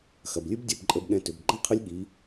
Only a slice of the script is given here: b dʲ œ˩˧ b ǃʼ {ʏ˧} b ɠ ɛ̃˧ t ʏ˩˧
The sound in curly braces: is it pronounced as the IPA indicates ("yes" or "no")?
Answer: no